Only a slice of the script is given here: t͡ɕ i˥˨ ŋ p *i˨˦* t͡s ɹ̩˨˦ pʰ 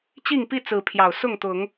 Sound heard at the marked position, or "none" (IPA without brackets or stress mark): i˥˨